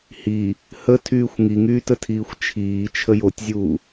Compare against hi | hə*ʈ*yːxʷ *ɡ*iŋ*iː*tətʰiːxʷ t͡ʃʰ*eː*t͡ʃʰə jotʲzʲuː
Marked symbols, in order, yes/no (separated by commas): no, no, no, no